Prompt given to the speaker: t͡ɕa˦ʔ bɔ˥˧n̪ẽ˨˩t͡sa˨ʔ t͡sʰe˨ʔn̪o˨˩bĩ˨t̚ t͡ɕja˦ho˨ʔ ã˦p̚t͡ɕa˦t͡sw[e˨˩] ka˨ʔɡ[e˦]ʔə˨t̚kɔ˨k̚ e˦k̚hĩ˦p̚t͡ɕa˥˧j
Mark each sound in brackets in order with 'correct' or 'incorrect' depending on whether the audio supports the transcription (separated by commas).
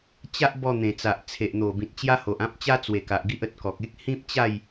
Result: correct, incorrect